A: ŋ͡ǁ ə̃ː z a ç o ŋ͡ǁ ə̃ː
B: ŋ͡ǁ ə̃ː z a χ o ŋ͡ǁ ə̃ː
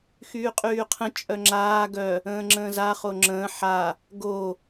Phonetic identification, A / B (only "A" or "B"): B